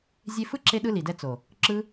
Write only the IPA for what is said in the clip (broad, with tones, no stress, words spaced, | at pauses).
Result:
zʲe˧fɯ˦ǁe˧ɗɯ˧ li˨dɛ˧ t͡so˨ | ǁɯ˦